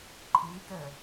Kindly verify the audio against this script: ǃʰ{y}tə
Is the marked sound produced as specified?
no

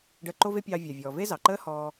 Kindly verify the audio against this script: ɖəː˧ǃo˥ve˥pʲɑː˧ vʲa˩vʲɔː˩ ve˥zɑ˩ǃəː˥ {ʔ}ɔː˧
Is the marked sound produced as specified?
no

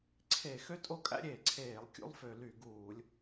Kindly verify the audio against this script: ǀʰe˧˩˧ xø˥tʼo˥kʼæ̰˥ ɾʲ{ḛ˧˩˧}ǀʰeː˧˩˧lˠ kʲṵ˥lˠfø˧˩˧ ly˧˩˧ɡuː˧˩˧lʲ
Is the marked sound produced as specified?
no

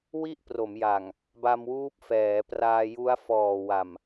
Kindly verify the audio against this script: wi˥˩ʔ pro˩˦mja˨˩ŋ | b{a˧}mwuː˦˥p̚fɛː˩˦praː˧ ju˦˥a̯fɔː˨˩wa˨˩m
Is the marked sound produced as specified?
yes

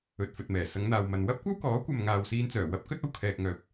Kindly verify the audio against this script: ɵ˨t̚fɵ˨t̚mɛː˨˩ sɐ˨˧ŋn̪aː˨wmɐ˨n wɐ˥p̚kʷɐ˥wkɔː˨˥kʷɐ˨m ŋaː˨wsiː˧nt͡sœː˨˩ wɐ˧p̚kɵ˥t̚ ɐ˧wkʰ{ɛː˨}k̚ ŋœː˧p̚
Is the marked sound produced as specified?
yes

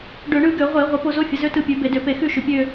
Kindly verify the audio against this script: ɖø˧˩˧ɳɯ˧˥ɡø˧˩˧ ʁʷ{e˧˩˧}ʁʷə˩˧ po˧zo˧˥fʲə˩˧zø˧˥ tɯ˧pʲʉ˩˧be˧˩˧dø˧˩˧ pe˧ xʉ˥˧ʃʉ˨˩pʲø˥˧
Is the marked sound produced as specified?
yes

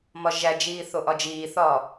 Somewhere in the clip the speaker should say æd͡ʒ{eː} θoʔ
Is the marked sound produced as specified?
no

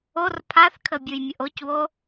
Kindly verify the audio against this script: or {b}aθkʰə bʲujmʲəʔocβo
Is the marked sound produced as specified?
no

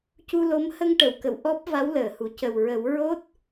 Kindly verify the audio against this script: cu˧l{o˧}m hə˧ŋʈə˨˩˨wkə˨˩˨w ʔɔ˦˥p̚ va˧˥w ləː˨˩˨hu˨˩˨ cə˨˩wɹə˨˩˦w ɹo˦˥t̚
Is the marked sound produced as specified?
no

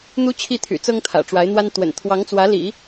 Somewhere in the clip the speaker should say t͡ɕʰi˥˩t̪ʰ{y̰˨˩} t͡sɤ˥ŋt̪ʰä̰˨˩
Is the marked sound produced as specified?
yes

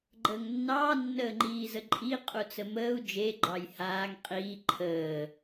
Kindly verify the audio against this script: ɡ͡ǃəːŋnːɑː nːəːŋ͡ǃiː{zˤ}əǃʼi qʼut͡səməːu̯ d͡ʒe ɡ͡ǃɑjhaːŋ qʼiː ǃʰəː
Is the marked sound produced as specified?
no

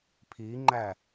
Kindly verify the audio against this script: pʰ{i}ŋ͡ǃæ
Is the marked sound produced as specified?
yes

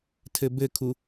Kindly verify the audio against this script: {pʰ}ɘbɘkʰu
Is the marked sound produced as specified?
no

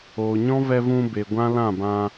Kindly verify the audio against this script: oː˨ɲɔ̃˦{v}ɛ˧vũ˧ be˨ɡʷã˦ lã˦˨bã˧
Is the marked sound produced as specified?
yes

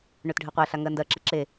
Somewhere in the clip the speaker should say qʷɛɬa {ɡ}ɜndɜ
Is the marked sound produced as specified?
no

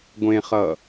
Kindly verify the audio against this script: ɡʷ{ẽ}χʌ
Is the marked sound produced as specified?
yes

